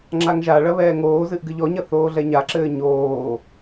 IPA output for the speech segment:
ŋ͡ǁaŋʒaɭɐ βɛːŋoːzɨʔ ɡɨʎɔɲɐ θoːɮɛɲaǁɘː ɲoː

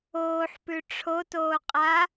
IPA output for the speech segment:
oːħpʉ ʈ͡ʂʰotoːqʼa

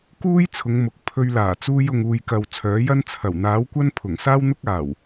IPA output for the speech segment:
kuː˥jt͡sʰʊ˨˧ŋmʊ˨˥k̚ pʰɵ˧ɥlaː˨˩ t͡suː˧jʊ˨ŋuː˨jkɐ˨w t͡sʰœː˨˥jɐ˥n t͡sʰɐ˨˩wn̪aː˨˥wkʷɐ˥n pʰʊ˨˩ŋsaː˥wn̪ʊ˥k̚ aː˨˩w

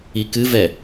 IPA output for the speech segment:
ikɨvɛ

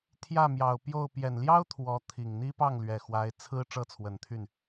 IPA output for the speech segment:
t̪ʰjä˥˩mjɑ˨˩ʊ̯pjo˥˩ʊ̯ pjɛ˨˩nljɑ˥ʊ̯ t̪ʰwɔ˧˥t̪ʰi˨˩ŋ n̪i˥pɑ˥˩ŋlɥɛ˨˩ xwa˧˥ɪ̯ t͡sʰɹ̩˥ ʈ͡ʂɤ˥˩t͡sʰwə˨˩n t̪ʰy˥˩n

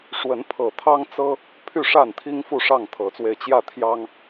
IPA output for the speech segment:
ʂwə˨˦npʰɤ˨˩t̪ʰɑ˦ŋt͡sɤ˦ | pʰy˥˨ʂa˥˨nt̪ʰi˦ŋ fu˥˨ʂɑ˥˨ŋt̪ʰɤ˨˦t͡swe˧ɪ̯ t͡ɕjä˥˨t̪ʰjɑ˦ŋ

